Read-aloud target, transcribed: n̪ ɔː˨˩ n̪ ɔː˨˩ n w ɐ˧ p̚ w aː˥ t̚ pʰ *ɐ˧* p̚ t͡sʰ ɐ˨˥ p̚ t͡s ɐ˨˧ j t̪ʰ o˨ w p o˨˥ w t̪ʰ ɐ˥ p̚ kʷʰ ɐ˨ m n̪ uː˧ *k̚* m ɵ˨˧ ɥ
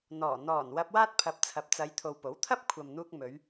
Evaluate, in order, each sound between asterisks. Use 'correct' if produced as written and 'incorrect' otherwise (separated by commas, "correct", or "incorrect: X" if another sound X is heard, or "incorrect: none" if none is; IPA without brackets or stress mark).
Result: incorrect: ɐ˨˥, correct